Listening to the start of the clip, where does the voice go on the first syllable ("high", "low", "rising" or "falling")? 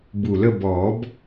low